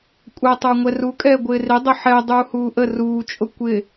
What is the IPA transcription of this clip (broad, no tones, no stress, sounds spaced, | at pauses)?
kʷʼ ɛ tˤ ə˞ ŋʷ ɛ r u kʼ ɛː ɡʷ ɪː r ɪ dˤ ʊ ħ ɛ dˤ uː h uː ʔ ə r uː t͡ʃʼ ʊ kʷ ɪ